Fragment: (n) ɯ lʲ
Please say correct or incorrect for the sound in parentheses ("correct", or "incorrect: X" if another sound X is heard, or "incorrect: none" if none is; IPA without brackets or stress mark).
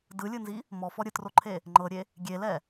incorrect: d